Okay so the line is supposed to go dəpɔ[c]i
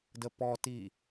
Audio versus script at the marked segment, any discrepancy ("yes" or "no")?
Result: yes